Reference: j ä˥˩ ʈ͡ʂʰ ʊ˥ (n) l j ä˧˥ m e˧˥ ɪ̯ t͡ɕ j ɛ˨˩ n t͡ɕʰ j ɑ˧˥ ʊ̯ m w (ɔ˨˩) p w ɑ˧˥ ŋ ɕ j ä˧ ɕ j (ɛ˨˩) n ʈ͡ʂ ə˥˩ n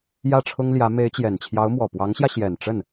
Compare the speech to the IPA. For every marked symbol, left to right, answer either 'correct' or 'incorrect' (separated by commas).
incorrect, correct, correct